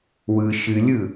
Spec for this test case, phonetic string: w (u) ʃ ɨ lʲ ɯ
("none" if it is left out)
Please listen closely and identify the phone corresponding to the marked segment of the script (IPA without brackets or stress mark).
ɯ